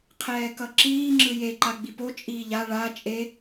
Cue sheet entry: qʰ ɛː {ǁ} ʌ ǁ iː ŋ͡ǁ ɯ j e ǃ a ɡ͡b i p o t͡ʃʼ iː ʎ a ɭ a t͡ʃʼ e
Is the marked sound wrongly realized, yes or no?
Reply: yes